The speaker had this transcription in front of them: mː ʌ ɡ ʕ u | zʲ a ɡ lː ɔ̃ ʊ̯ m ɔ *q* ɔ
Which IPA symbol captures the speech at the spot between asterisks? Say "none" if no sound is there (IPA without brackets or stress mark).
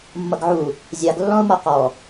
q